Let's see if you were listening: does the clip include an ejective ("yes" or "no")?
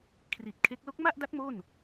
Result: no